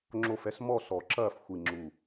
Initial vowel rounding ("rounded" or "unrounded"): rounded